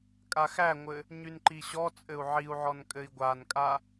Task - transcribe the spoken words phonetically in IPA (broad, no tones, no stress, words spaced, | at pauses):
kʼaxæŋʷɘ | ɲynǃiɕɔt͡sʼɘu̯ ʕiu̯ʕɔn kʼɘi̯ɡʷankʼa